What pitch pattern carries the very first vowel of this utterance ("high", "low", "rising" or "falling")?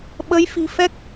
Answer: rising